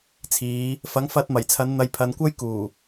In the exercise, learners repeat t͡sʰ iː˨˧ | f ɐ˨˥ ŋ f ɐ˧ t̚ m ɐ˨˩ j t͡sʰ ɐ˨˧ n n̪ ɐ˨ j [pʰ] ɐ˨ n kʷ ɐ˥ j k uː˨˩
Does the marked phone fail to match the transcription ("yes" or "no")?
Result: no